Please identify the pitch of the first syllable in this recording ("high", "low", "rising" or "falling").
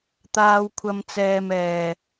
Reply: low